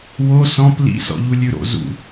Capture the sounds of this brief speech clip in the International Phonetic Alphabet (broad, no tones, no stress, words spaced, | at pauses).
wo sɔ̃p lḭsɔ̰ʎulʲʉ ɾo̰ zṵ